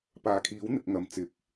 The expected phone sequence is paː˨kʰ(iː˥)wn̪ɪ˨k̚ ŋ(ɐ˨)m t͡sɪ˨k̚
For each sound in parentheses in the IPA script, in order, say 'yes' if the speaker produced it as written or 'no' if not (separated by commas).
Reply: no, yes